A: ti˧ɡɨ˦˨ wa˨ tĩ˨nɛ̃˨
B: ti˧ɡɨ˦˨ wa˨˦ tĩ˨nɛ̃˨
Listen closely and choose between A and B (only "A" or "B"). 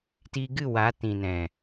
B